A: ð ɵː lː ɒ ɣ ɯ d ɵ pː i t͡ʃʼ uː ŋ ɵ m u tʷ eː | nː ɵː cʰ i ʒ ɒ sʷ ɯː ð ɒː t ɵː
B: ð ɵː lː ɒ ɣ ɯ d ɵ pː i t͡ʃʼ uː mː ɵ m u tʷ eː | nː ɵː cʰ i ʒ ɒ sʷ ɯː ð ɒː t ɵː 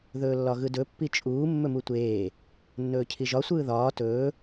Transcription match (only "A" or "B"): B